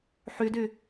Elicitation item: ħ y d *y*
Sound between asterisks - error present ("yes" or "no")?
no